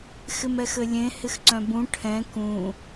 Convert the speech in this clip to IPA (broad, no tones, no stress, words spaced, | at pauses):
xɪmɛxɘlʲẽ hɪxǀœ̃bũ ʈʰɛ̃ kũ